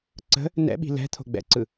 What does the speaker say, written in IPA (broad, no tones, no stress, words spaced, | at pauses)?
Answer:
ǀə̤ | nɛ̰ɓi̤ lɛ̤t̪ʰo̤ ɡ͡bɛ̰ǀɯ